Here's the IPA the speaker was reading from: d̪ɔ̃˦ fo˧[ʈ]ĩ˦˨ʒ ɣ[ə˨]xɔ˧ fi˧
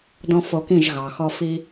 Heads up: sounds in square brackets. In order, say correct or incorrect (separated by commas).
incorrect, incorrect